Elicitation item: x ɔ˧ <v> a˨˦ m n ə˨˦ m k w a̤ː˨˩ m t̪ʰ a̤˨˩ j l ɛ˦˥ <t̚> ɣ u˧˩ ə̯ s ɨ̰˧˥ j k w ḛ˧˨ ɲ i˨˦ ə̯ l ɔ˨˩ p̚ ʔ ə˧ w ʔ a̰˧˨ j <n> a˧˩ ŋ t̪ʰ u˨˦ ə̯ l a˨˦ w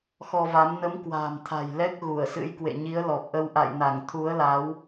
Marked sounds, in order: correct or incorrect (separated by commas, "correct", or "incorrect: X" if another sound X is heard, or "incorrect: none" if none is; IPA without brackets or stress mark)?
correct, incorrect: k̚, correct